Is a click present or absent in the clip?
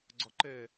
present